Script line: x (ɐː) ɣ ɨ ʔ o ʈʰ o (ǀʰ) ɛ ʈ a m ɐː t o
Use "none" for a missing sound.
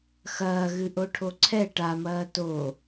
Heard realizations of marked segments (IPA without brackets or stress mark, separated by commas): ɐː, ǀʰ